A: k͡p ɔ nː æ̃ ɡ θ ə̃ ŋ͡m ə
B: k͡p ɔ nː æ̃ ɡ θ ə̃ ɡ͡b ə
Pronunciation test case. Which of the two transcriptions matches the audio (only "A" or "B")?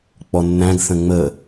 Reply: A